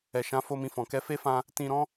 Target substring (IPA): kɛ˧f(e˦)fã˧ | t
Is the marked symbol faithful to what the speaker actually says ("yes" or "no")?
yes